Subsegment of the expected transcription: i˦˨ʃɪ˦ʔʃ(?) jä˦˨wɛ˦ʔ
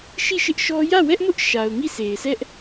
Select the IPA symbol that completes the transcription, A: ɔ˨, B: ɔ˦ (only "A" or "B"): B